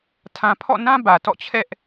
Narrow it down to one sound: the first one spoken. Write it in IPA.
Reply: tʰ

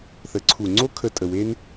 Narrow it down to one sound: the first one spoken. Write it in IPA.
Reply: θ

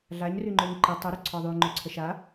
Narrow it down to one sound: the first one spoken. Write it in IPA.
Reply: ɮ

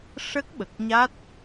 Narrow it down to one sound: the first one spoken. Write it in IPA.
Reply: ʂ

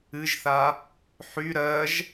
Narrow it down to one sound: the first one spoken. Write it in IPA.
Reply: ɨ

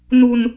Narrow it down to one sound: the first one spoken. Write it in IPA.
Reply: n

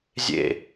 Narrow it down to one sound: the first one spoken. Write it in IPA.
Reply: zʲ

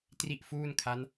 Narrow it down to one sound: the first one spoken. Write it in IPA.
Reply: t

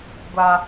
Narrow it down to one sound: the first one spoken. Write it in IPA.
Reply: ɡʷ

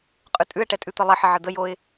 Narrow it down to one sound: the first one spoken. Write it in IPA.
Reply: qʼ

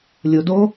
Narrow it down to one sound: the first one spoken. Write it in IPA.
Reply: lʲ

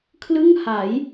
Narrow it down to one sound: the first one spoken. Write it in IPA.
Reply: kʰ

